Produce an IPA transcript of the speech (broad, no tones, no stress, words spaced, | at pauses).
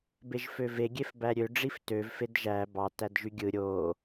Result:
beʒføve ɡʲefbæɾʲø ɖ͡ʐiftøv fedʒæ bɑ tædʒyɡʲɯ ɾʲo